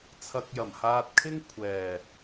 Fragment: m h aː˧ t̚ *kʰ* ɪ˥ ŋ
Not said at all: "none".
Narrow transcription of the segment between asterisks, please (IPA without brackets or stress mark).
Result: kʰ